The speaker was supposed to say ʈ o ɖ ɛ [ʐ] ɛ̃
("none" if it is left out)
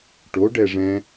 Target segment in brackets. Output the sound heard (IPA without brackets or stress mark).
ʐ